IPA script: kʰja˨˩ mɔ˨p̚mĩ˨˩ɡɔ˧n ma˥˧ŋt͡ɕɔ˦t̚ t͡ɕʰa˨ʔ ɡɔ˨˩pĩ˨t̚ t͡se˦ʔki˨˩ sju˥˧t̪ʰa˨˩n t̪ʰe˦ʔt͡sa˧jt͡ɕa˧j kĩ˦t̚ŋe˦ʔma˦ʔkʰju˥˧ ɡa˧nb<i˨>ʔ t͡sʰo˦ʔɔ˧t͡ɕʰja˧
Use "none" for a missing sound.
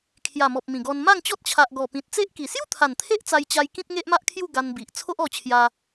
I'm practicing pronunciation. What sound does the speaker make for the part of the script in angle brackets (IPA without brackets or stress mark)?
i˨